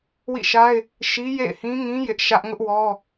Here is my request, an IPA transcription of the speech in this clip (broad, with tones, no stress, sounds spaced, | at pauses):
w ḭ˦˨ ʃ a˦ ɪ̯ | ʃ i˦ j ḛ˦˨ ɪ̯ h ĩ˦ ŋ ĩ˦ j ɪ˦ ʔ ʃ ä˦ ʔ ŋ ʊ˦ ʔ w ɔ˦